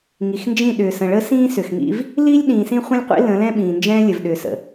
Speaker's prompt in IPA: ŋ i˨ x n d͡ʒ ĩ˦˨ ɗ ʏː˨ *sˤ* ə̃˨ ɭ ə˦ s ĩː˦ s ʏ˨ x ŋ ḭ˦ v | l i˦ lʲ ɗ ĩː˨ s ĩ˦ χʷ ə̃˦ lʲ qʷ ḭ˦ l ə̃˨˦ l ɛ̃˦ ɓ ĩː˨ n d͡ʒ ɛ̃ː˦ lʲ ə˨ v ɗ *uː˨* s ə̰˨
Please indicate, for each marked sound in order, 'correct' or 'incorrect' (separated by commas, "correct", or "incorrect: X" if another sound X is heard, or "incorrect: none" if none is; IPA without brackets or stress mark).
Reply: incorrect: s, incorrect: ʏː˨